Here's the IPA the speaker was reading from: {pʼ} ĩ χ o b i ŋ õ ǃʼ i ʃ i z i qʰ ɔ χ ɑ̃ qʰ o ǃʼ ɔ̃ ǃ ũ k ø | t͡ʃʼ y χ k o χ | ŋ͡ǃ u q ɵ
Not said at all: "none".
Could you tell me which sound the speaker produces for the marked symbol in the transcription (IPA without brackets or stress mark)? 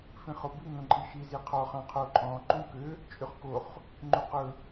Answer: f